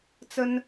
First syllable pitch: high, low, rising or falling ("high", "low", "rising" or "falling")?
high